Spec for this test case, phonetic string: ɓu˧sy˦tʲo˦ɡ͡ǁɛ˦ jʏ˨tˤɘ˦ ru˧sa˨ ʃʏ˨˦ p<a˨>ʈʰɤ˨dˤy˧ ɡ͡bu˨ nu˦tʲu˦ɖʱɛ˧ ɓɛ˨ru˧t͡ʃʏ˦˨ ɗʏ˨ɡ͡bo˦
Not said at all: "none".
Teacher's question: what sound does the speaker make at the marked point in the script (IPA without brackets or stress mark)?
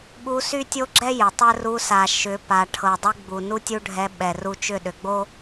a˨